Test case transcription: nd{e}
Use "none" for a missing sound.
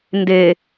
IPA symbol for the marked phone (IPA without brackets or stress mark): e